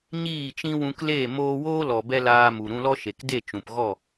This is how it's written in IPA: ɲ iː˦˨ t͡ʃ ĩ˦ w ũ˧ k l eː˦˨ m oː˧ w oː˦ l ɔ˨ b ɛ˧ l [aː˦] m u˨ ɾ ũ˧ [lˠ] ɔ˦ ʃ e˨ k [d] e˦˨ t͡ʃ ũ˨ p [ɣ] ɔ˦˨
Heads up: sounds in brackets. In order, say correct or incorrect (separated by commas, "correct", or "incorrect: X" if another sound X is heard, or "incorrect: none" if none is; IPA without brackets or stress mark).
incorrect: aː˧, incorrect: l, correct, correct